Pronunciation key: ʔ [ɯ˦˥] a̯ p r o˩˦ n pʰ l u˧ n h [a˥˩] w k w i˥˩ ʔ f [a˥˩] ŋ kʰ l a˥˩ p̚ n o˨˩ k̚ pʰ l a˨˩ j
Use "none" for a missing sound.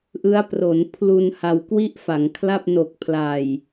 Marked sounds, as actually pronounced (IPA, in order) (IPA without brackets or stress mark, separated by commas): ɯ˦˥, a˧, a˩˦